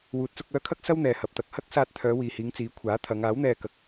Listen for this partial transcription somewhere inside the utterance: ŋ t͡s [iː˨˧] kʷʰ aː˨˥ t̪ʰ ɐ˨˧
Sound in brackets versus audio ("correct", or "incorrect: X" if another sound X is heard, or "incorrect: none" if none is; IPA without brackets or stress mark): correct